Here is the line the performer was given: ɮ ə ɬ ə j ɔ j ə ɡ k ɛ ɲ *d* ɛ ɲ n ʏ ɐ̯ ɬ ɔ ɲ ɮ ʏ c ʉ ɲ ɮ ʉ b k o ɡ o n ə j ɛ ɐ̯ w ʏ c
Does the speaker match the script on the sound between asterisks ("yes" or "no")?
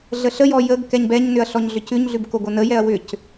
no